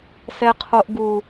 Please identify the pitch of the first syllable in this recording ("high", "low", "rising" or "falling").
high